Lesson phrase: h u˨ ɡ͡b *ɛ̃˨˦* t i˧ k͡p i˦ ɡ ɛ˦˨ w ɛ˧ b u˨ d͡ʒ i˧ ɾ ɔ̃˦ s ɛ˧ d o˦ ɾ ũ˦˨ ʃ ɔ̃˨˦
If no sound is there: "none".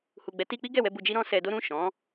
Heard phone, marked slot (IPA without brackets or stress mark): ɛ˨˦